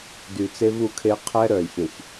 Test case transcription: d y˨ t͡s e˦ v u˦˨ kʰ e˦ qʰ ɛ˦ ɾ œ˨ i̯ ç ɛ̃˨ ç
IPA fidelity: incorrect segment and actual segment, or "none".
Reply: none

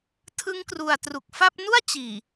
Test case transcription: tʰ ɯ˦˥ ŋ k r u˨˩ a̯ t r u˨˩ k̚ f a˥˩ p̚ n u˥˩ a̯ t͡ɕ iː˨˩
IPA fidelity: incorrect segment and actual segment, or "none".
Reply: none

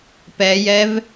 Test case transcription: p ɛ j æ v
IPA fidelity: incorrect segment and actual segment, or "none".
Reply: æ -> ɛ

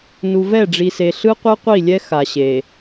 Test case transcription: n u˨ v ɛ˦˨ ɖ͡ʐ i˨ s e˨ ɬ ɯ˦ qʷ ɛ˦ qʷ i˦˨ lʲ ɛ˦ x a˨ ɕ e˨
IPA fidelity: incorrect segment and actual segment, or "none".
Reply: none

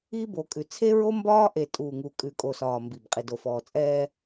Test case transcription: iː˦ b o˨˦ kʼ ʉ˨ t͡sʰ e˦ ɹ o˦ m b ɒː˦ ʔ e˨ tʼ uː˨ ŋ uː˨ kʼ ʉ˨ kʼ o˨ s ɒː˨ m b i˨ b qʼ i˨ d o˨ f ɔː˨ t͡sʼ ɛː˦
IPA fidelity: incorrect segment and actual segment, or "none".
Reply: none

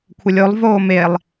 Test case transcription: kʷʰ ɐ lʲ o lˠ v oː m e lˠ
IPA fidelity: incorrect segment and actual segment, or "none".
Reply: none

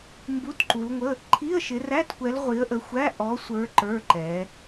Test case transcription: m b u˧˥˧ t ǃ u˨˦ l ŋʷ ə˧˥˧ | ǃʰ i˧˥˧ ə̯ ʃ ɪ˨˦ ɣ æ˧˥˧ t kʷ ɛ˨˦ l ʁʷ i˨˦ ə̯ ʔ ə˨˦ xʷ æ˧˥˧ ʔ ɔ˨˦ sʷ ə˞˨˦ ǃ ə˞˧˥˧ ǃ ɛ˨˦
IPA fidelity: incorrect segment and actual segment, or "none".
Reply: ɣ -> r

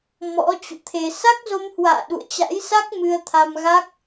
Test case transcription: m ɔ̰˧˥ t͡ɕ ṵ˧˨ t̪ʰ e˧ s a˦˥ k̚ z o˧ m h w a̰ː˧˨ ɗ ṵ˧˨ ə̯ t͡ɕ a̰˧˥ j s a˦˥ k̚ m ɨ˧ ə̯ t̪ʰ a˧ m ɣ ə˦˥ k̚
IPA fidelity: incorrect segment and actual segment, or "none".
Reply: ə˦˥ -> a˦˥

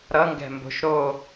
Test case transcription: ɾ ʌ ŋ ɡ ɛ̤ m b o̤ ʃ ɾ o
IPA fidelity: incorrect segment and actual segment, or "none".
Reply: none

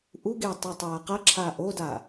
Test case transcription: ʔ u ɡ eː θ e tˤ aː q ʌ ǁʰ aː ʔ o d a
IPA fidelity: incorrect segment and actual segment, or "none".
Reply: θ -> tˤ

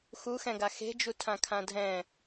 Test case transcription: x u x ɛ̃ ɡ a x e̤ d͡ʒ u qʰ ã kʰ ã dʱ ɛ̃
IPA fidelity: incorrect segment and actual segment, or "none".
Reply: qʰ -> tʰ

